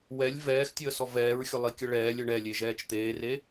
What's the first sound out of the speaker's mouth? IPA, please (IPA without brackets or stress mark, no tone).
w